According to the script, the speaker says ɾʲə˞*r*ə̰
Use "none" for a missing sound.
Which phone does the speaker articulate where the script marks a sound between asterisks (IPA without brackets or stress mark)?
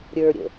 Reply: ɾʲ